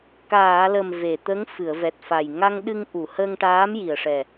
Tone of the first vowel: low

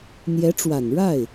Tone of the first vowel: rising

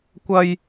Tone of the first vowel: high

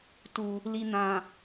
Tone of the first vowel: low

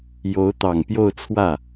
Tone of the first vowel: rising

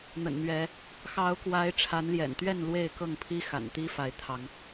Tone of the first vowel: low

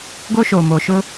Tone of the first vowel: high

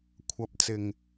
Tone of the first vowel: rising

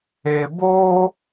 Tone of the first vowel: low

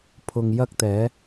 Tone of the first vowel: low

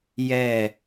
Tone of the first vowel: falling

